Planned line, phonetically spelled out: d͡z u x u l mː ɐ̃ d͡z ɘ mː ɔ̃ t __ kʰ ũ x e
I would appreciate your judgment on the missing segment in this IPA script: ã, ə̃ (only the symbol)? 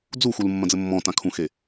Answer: ã